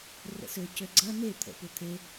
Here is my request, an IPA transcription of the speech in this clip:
r ə̰ s ø c ø ɡ͡ǀ ɐ n e t̪ʰ ə̰ p ʏ t̪ʰ e

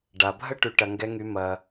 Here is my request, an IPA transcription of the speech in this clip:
ɖ a˨ bʱ ə˦ ʈ y˨ ʈ ɐ˨ ŋ ɡ ɛ˦ ŋ y˦ m ɐ˦

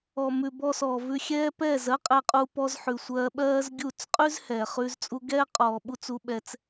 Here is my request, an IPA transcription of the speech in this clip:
ɔ˨ m ʉ˨ b ɔ˧ s ɔː˨ v ʉ˧ xʲ ɛː˦ p ɛː˦˨ z ɜ˦ qʼ ɛ˧ qʼ u˧ p ɔ˧ z ħ ʉ˨ sʷ ɜː˧ ɓ ɜː˦ z ɡʲ u˦˨ t͡s qʼ ʉ˦ z h ɛː˨ χ ʉ˧ z t͡sʼ u˧ ɡ ɛː˦ qʼ ɔː˨ ɓ u˧ t͡s u˧ ɓ ɛ˧ t͡s

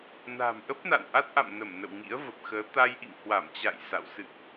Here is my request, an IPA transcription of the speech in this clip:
n a̤˨˩ m ʔ ə˦˥ p̚ n a̰˧˨ n ʔ a˦˥ t̚ ʔ a̰˧˨ m n ə˧˩ m n ə̰˧˨ w ŋ ḭ˧˥ ə̯ v ə˨˩ p̚ x əː˨˦ t̪ a˧ j ʔ ḭ˧˨ ŋ h w a˧˩ m t͡ɕ a̰˧˨ j s a̰˧˨ w s ɨ̰˧˨ ʔ

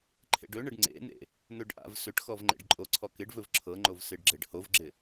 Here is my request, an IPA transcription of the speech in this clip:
ǃʰ ḛ ɖ ɵ ɳ ə ɖ ŋ͡ǀ ḛ n̪ ḛ | n̪ ɵ ɖ ʔ a̰ v s ɵ ʈ x ɔ v ŋ͡ǃ ḛ ɖ ǃʼ o ǀʰ ɔ k ɪ ɖ v ɵ v ǁʰ ɤ ŋ͡ǃ o v s ɪ ɖ ɡ͡ǁ e ɖ h o v ɡ͡ǁ ɪ

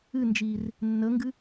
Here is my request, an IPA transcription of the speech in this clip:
ɨ n d͡ʒ iː r | nː ə ŋ ɡ ɨ

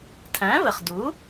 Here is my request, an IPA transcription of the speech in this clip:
tʰ æ̃˩˥ v ə˩ χ d u˩˥

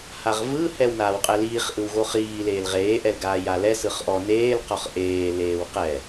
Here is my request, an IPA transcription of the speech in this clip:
h a ʁ v ɯ h ɛ w n aː w qʼ ɛ l iː χ ʔ ɯ w ɣ o χ iː l eː l ʁ eː ʔ ɛ l ɡ aː j a l ɛ s ɯ χ ʔ ɔ n eː l q ɔ χ ʔ eː l eː w q ɛ

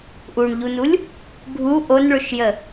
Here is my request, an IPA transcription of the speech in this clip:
ʔ u ɳ ʎ u n u lʲ | ɡʱ u ʔ o n ɭ ɵ ʃ j ə

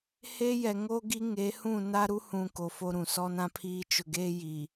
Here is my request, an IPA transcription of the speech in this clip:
h e˦ j ɛ˨ ŋ o˦ ɡ i˦ ŋ e˨˦ h ũ˦˨ n a˦ ɾ u˦ h ũ˨ k o˨ f o˦ ɾ ũ˨ s ɔ˦ n ã˦ pʰ iː˦ t͡ʃ ʊ˨ ɡ eː˦ j i˨

